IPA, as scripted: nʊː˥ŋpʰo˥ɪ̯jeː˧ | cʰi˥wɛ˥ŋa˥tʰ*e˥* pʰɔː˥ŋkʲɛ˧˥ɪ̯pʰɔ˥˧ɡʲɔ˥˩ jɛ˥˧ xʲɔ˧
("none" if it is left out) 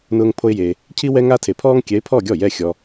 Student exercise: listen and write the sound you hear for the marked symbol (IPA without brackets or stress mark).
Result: e˧